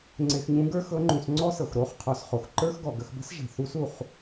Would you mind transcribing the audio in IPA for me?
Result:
ŋ͡ǀe˧xɲũ˧˥ɡə˞˥ xɤ˧˥ŋ͡ǃũ˩˧sŋ͡ǀɔ˥sɤ˩x ɾo˧˥χ qʰɔ˩˧sχo˩xǃə˞˥xɡɔ˩ ɡə˧xbə̤˥sʒe̤˩ θu˧˥su˩χ

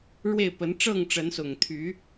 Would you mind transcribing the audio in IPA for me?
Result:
ɻwe˥˨ɪ̯pə˨˦n ʈ͡ʂɤ˥˨ŋʈ͡ʂə˨˦nsʊ˨˩ŋt̪ʰy˨˦

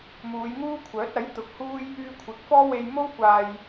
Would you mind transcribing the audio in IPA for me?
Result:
muː˨˧jŋuː˥kʷʰœː˨˥t̚ ɐ˨˥j t̪ʊ˨˥k̚huː˥j | yː˧kʷʰɪ˨˥k̚fɔː˥ we˧jmo˥wkʷaː˧j

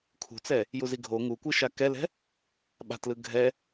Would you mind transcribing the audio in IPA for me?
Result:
kʰṳt͡sɛ | juziɡʱo ŋukʷɯ ʃakɛlɛ̤ | ɓa̤tlɯ ɡʱɛ

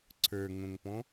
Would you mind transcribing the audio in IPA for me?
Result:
ǀʰə˞ŋõŋpɔ̃

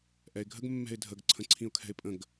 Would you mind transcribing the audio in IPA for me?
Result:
ʔɛɪ̯ɡʱəɡ mːɛ̤ɪ̯dʱəɡ ǀʰə̃ǀʰĩʊ̯kʰɛ̤ɪ̯pʼə̃ɡ

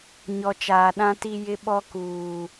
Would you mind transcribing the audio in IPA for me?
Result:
ɲɔ˨t͡ʃaː˨ɗã˦ ti˦jɪ˦ ɓɔ˦kuː˨

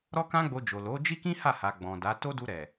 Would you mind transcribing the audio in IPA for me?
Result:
ɾɔ˦kã˦ɡ͡bo˧d͡ʒo˨ lo˨˦ d͡ʒi˦kĩ˦ ha˦˨ha˨ ɡ͡bɔ̃˨da˨˦ to˦du˧ ɾɛ˨

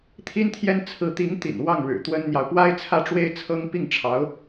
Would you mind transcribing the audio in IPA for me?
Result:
t̪ʰi˥nt̪ʰjɛ˥n t͡sʰɹ̩˧˥t̪i˧˥ŋ t̪ḭ˨˩n wɑ˥˩ŋɻɻ̩˨˩ t̪wə˥nn̪jɑ˨ʊ̯ pwa˥ɪ̯t͡sʰä˥˩ʈ͡ʂwe˥ɪ̯t͡sʰɤ˥ŋ pi˥˩ŋʈ͡ʂʰɑ˧˥ʊ̯

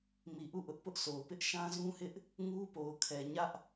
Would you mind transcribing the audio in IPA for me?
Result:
mi˨ʔu˦˨ ʔʊ˦ʔpʊ˦ʔ sʰo˨ʊ̯pɪ˦ʔ ʃã˦zũ˦hɪ˦ʔ | ŋu˦po˨ʊ̯kʰɛ˨ ɲä˦ʔ

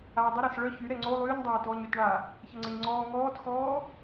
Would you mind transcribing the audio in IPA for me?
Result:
aːdˤəɾas ɭœ çyɾɛ ŋ͡ǀo lˠyːɲdˤaːtɔːɲ øtɳa | çəŋ͡ǀəɲŋ͡ǀɔː ŋɔːtxɔː

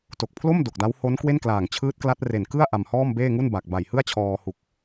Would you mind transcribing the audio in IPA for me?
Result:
to˨˩k̚pʰlo˥˩m do˨˩k̚da˦˥w ho˦˥n kwe˥˩nklaː˨˩ŋt͡ɕʰɯː˦˥t̚ kla˦˥t̚re˨˩n kɯ˥˩a̯ ʔa˧mhɔː˥˩mbeː˥˩ŋu˥˩n ba˨˩k̚ba˨˩jhɯ˥˩a̯t͡ɕʰɔː˧ hu˨˩k̚

